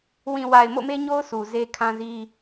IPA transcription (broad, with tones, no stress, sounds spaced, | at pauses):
w ĩ˨ w a˨ ɪ̯ m o̰˦˨ m e˦ ɲ o˦ ʊ̯ s u˨ z e˦ kʰ ã˦ z i˦